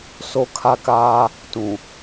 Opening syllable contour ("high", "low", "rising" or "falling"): high